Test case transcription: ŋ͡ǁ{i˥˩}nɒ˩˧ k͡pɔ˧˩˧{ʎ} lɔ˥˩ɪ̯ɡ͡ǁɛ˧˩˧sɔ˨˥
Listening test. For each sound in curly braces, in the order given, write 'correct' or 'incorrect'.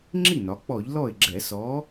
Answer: correct, correct

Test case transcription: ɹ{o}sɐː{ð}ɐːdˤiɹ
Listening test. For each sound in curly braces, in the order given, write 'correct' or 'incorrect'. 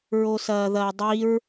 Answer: correct, correct

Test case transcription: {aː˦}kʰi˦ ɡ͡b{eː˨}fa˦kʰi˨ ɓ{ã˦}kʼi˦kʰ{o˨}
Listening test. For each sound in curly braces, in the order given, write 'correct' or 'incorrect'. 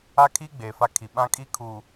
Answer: incorrect: a˦, correct, correct, incorrect: u˨

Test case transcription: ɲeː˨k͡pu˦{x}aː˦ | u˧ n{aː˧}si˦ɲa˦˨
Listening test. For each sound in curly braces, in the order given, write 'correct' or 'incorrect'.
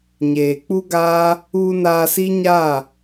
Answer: incorrect: ɡ, correct

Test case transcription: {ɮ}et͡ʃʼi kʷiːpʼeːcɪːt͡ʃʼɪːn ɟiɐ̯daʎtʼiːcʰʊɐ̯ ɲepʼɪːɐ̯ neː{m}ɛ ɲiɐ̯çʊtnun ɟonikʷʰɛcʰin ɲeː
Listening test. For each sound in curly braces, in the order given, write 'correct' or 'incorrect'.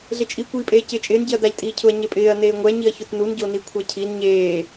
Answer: correct, incorrect: ŋʷ

